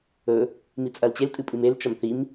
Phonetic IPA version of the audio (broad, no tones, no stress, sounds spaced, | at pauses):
ɵ | m i t͡sʼ ɐ l t͡ɕ e l tʼ ɨ pʼ ɨ m e l t͡ʃ ɐ m θ i m